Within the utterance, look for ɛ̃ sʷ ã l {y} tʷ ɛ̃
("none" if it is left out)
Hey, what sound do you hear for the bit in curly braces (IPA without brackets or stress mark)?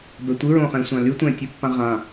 y